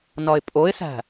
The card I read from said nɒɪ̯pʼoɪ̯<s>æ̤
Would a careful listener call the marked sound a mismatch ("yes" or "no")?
no